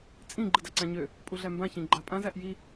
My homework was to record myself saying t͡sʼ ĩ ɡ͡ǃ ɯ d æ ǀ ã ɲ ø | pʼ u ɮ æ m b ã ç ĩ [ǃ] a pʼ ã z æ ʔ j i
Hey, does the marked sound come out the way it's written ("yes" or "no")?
no